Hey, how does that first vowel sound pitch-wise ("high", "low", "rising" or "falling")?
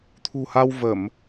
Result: low